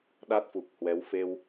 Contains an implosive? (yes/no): yes